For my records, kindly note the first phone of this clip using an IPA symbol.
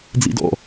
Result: d͡z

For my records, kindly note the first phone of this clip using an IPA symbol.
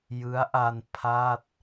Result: j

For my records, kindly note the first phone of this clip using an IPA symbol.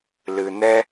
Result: l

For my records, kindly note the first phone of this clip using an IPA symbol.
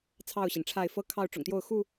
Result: t͡sʰ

